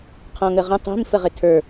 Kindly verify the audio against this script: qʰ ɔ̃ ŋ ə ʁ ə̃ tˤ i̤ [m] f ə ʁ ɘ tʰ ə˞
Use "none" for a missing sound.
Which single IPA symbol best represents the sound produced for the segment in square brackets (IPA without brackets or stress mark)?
m